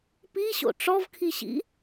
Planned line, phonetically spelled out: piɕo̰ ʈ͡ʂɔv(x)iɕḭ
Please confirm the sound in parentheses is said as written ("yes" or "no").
no